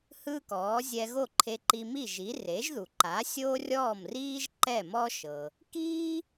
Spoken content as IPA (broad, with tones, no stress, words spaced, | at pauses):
hɯ˥kɔː˩˥ zʲɛ˧ɣo˥˩ǃʰe˧ ǃi˧mi˥˩ʒi˩˥ re˩˥ʒðu˩ǃa˩˥ sʲoː˥rʲɔː˥˩mriː˥ʒ ǃɛ˥˩mɔ˥ʃɤ˩ | kiː˥